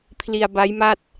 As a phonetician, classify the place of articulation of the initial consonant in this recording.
labial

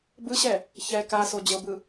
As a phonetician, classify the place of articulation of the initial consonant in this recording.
labial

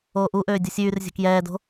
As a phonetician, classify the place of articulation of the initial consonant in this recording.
glottal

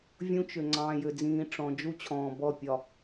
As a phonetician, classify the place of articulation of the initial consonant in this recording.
labial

